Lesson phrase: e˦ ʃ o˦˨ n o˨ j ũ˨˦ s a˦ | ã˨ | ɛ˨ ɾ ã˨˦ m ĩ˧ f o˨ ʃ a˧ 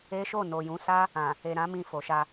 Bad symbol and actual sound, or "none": ɛ˨ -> e˨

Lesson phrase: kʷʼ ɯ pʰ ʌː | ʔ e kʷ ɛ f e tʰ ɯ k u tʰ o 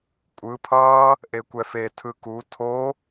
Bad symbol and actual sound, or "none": none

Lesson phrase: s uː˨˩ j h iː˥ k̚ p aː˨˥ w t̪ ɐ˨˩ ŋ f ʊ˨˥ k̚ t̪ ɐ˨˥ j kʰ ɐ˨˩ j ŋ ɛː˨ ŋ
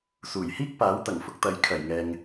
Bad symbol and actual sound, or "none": none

